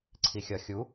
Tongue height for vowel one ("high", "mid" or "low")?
high